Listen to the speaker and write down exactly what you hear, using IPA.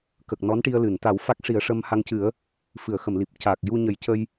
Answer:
k ə˨˩ k̚ n ɔ˧˥ n ʈ i˧ ə̯ l ɨ˨˩˨ n t̪ a˨˩˦ w f a˦˥ k̚ ʂ i˨˩˦ ə̯ ʂ ə˧ m h a˧ ŋ c ɨ˨˩˦ ə̯ | f ɨ˨˩˨ ə̯ x ə˨˩˨ m l i˨˩ p̚ c a˨˩ k̚ j u˧ ɲ ə˨˩˦ j c ə˧ j

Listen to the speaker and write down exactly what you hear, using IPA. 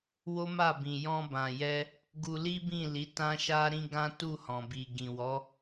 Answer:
w o˦ m a˦˨ b ĩ˨ j ɔ̃˧ b ã˨ j ɛ˧ | ɡ u˧ l i˦ b ĩ˦˨ l i˨˦ t ã˦ ʃ a˦ ɾ ĩ˦ ɡ ã˦ t u˦˨ h ɔ̃˨ b i˨ ɡ ĩ˨ w ɔ˨˦

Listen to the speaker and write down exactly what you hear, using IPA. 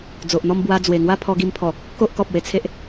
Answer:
d͡z o˨ ʔ n̪ ɔ˥˧ m b w a˧ d͡z w e˨˩ ŋ w a˥˧ pʰ ɔ˧ ɡ i˧ m pʰ ɔ˨˩ | k o˦ ʔ k ɔ˨ p̚ w e˧ t͡sʰ e˦ ʔ

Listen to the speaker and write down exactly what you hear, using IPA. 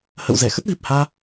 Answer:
h ə̰˧˨ w z ɛ˧˩ x ə˦˥ t̚ v i˨˩ p̚ h aː˧

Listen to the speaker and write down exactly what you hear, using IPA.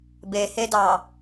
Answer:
b e h e d ɑ

